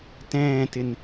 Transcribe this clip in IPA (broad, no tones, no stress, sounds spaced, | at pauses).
t ɛ̃ː t ɪ n